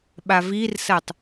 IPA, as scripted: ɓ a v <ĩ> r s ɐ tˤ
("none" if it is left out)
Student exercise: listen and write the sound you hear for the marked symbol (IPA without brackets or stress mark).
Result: i